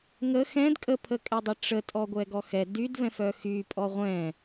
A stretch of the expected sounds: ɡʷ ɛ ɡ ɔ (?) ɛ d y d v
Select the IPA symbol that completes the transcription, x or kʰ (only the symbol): x